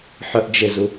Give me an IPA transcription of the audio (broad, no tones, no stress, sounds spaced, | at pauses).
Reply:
ħ ɵ ʔ d͡ʒ e z u